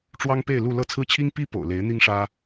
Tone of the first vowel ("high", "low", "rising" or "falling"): high